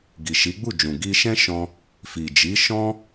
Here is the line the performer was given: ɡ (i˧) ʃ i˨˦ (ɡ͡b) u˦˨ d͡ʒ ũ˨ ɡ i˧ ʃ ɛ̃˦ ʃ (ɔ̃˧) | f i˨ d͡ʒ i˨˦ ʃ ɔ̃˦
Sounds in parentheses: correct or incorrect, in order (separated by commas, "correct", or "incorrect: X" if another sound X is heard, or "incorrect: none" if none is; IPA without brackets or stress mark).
incorrect: i˨, correct, correct